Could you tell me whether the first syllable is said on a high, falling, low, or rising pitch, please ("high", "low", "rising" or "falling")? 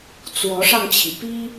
rising